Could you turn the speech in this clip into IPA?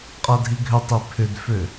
qʼ a dʱ i ɡʱ ʏ tˤ i pʰ ʏ d f ø

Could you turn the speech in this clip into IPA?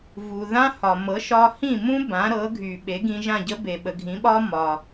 v u˩ ð ã˥ h ɒ˩ m ɤ˩˥ ʃ ɒ˧ h ĩ˥˩ m ũ˥ b ã˩˥ ɾ ɤ˩˥ ɡʱ y˩ ɓ e˩˥ ɡ ĩ˧ ʒ ã˥˩ ɟ ə˥ b e˩ ɓ ə˩ ɡʱ ĩ˩˥ ɓ ɒ˥ m ɒ˩

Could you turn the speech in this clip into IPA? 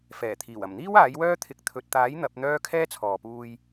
f ɛː˨˩ t̪ʰ iː˨˩ w ɐ˨˩ m n̪ iː˥ w aː˨˥ j w œː˥ t̪ʰ ɪ˨˥ k̚ t̪ʰ ɵ˨ t̚ t̪ aː˨˥ j n̪ ɐ˨˥ p̚ n̪ œː˥ kʰ ɛː˥ t͡sʰ ɔː˨ p uː˧ j

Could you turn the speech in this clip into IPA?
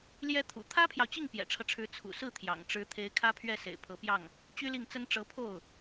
l j ɛ˥ t̪ʰ ṵ˨˩ t̪ʰ ä˥ pʰ j ɑ˨ ʊ̯ t͡ɕ i˥˩ ŋ p j ɛ̰˨˩ ʈ͡ʂʰ ɤ˦ ʈ͡ʂʰ ɻ̩˧˥ t͡sʰ ṵ˨˩ s ɹ̩˥˩ t̪ʰ j ɑ̰˨˩ ŋ ʈ͡ʂ ɻ̩˧˥ t̪ʰ e˧˥ ɪ̯ kʰ ä˥ pʰ ɥ ɛ˥˩ s ḛ˨˩ ɪ̯ pʰ ɤ˧˥ p j ɑ˥˩ ŋ | t͡ɕ y˥ l i˥˩ ŋ t͡s ə˥ n ʈ͡ʂ ɤ˧˥ pʰ o˥˩ ʊ̯

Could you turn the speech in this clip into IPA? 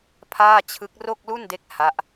pʰ aː˥˩ t͡ɕʰ ɯ˦˥ k̚ r o˥˩ k̚ l u˥˩ n d e˦˥ k̚ h a˦˥ ʔ

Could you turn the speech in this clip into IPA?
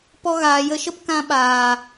p ɔ˧ ɣ aː˨ j ə˧ ʃ ə˦ p k ã˧ ɓ aː˨

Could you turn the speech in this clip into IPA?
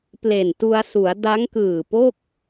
p l e˨˩ n t u˧ a̯ s u˩˦ a̯ d a˦˥ ŋ k ɯː˨˩ p o˥˩ k̚

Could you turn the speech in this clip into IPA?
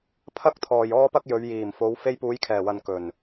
pʰ ɐ˥ k̚ t̪ʰ ɔː˨ j ɔː˥ p ɐ˥ k̚ j ɵ˨˧ ɥ j iː˨˩ m f o˨˧ w f e˧ j p uː˨˧ j kʰ ɛː˨˩ w ɐ˨ n k ɵ˨˩ n

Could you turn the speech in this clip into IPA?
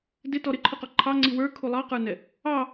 d ɪ t ɔ ɾ ɪ ǃʰ ʊ q ɔ ǃʰ ɑ ŋ͡ǀ i w ə˞ kʰ u lˠ ɑ q ə˞ n ɛ | ɑ

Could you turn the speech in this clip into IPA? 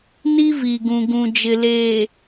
n i˦ v i˨ ɡ ũ˨ ɡ ũ˨ d͡ʒ ɪ˨ l eː˨

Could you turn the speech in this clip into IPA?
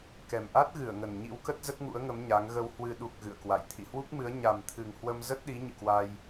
k ɛ˨˩ m ʔ a˦˥ t̚ ɣ ɨ˧˩ ə̯ ŋ ə˨˩ n ɲ ḭ˧˥ w k ə˦˥ t̚ z ə˦˥ t̚ ŋ ṵ˧˥ ə̯ ŋ ə˨˦ m ɲ a˨˦ ŋ ɣ ə˧ w h w ɨ˨˩ ɗ u˨˩ k̚ ɣ ɨ̰˧˨ ə̯ k w a̰˧˨ j t̪ʰ ḭ˧˨ h w u˦˥ k̚ m ɨ˨˦ ə̯ ɲ a˨˩ m t̪ʰ ɨ˨˩ ŋ h w ə˧ m z ə˦˥ t̚ ɗ i˨˦ ɲ ɨ̰˧˨ k w a˧ j

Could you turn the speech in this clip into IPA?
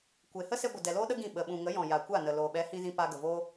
kʷ e˨ h ə˦ s e˧ ɡʷ ə˨ d ɛ˨ l oː˦ ɗ ə˦ ɡ ĩ˦˨ ɓ ə˨ ɓ ũ˨ ŋ ə˨˦ j ɔ̃˨ j a˨ kʷ a˦˨ n ə˨ l oː˨ ɓ ɛ˨˦ h ĩ˧ z ĩ˧ p a˧ ɡ ə˨ v oː˦

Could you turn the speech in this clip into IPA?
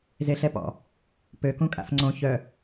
z e ɬ ɛ p ɔ̰ | p ø k ũ kʼ a̰ f ŋ͡ǀ õ ç œ

